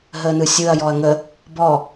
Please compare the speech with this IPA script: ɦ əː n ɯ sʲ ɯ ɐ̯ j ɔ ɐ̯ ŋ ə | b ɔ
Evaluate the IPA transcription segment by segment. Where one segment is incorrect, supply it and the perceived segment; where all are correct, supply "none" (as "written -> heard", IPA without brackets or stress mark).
none